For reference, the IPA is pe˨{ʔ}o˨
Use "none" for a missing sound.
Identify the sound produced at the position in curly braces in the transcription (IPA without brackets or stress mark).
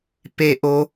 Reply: ʔ